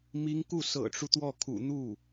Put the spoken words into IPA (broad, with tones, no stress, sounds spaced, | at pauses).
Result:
m i˧˥ ŋ k u˥˩ s ɤ̰˨˩ ʈ͡ʂ u˦ t̪ w ɔ˥˩ kʰ ṵ˨˩ n̪ u˥˩